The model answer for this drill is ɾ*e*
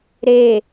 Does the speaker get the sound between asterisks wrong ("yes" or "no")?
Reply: no